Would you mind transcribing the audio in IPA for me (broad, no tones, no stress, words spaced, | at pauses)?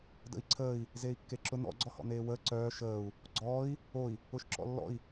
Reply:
də̰i̯ǀʰəːi̯ | zeːi̯kːeǁʊ nɔ̰ ɡ͡ǀɔhɔ̰neːwəː ǀœː ʃəːu̯ | ɡ͡ǀɔːi̯ | oi̯ | ʊʃǁɔ̰lːɔ̰i̯